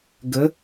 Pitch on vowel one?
rising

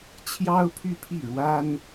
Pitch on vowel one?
high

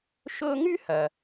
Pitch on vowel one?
high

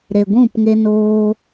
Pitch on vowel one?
low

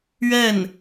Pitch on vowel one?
falling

